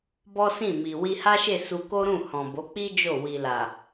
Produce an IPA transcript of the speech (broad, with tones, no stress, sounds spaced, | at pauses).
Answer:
b ɔ˦ s ĩ˦˨ m i˨ w i˧ h a˦ ʃ e˦˨ s u˧ k o˦ ɾ ũ˦˨ h ɔ̃˨ b o˨˦ k͡p i˦ d͡ʒ o˦˨ w i˨ l a˨